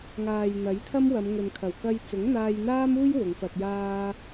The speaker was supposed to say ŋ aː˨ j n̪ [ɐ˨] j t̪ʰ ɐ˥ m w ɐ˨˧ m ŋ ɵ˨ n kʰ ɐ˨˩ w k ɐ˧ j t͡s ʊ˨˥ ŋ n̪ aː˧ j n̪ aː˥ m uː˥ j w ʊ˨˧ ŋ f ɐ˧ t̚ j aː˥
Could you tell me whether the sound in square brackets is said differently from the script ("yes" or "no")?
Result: yes